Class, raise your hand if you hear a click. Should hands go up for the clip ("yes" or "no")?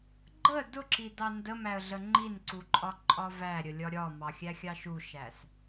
yes